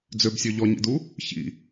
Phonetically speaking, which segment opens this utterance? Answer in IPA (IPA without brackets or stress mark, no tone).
d͡z